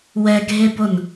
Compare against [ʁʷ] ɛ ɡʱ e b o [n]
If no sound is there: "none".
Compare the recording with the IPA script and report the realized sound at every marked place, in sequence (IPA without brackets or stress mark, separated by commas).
w, n